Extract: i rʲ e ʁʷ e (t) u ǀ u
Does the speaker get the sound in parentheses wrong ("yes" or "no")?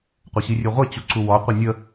yes